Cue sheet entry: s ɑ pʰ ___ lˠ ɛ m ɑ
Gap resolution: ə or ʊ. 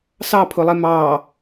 ʊ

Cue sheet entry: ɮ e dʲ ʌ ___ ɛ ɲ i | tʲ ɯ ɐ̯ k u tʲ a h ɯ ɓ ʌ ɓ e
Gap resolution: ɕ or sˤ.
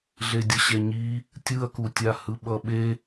ɕ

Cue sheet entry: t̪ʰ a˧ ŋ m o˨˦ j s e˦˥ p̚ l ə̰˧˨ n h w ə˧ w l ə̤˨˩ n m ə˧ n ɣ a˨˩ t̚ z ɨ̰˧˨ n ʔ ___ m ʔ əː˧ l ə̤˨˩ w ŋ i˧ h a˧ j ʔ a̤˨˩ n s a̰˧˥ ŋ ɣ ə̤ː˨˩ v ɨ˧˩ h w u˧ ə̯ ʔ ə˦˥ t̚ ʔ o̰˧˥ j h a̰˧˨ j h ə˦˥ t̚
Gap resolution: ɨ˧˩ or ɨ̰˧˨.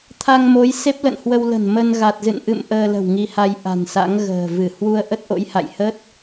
ɨ̰˧˨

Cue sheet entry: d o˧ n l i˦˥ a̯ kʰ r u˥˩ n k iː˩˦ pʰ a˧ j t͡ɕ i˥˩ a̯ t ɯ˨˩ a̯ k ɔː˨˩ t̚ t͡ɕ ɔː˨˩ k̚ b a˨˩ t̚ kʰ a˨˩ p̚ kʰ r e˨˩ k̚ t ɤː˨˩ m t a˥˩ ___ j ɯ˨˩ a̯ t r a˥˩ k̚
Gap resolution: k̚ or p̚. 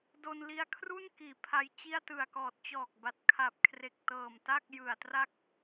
k̚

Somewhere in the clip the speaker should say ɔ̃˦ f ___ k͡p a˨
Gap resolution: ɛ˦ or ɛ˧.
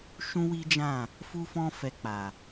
ɛ˧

